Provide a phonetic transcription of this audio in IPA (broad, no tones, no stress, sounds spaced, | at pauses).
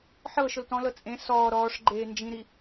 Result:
ħ ɤ ʃ ʊ l t ɔ̃ l ɤ t͡sʼ ẽ s ɔː ɾ ɔː ʂ ɡ͡ǃ eː n d͡ʒ ĩ ɾ i